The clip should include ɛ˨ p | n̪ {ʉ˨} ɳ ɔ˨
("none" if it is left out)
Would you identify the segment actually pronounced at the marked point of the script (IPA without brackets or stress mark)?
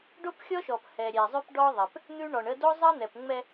ʉ˦